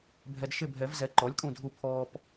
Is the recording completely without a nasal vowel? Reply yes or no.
no